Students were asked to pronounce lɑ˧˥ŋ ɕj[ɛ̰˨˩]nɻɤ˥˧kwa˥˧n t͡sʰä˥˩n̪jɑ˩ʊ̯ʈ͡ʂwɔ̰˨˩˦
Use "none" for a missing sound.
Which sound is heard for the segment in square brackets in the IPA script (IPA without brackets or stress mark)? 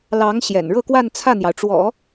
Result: ɛ̰˨˩